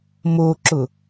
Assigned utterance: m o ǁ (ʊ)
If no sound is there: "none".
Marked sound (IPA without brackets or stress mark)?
ʊ